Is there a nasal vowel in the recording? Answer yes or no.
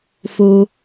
no